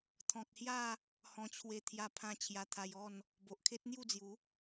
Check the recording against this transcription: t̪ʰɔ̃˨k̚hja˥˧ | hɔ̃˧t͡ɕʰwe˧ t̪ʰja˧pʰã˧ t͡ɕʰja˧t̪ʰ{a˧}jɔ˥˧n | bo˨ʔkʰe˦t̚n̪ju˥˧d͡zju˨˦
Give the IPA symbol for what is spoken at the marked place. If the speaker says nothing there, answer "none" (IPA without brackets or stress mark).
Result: a˧